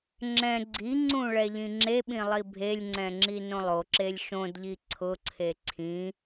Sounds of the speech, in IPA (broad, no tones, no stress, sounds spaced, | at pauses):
ŋ͡ǁ ɛ̃ ɡ͡ǀ i ŋ͡ǀ ũ ɭ ɛ ʎ ĩ ŋ͡ǁ e ɓ ĩ lˠ i bʱ e lʲ ŋ͡ǀ ɛ̃ ŋ͡ǁ i n õ lˠ o ǁ e lʲ ʃ õ d ʎ i ǀʰ ʊ ǀʰ e ǀʰ ĩ